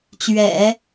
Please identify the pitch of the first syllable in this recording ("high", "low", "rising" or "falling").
low